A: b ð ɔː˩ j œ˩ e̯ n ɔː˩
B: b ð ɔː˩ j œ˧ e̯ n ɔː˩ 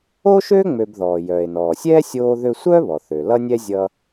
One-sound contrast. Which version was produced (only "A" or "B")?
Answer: A